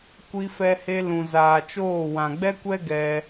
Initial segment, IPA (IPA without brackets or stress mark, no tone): kʷ